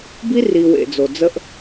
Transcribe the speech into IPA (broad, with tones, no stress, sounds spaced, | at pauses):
b i˦ r i˨ w ḛ˨ d͡z o˨ d͡z ə˦ ʔ